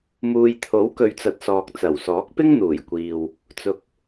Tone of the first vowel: low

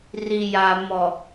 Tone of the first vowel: low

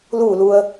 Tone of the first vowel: falling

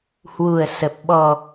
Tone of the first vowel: low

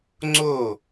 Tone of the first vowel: falling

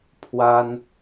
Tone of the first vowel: high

